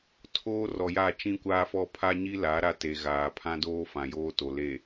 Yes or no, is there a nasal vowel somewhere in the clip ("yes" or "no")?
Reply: yes